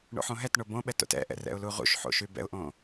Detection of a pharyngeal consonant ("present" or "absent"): present